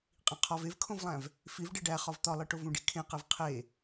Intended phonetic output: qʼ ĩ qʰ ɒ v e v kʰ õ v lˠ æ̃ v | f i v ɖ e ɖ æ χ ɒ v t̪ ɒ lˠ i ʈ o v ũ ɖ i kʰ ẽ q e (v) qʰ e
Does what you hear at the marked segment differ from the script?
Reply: no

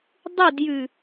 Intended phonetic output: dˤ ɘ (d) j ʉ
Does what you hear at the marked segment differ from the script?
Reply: no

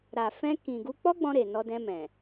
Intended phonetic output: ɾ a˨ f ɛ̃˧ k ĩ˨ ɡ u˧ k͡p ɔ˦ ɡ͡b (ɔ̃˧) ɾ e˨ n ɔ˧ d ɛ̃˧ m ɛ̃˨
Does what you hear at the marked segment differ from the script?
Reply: no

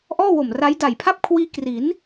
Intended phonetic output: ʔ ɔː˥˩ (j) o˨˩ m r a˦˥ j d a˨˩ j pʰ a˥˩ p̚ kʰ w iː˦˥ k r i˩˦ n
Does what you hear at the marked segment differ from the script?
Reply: yes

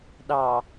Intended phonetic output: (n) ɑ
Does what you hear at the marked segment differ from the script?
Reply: yes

